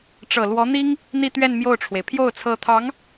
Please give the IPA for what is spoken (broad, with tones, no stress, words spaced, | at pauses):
ʈ͡ʂɤ˨˩lwɔ˧˥n̪i˥ŋ | n̪i˥˧t̪ɥɛ˥˧n mjo˥˩ʊ̯ʈ͡ʂʰwe˩ɪ̯ pʰjo˥˩ʊ̯t͡sʰɤ˧˥t̪ʰɑ˧˥ŋ